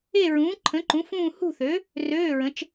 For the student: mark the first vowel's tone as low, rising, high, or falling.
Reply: falling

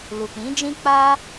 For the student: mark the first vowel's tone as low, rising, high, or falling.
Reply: low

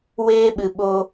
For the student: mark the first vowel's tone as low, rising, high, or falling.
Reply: high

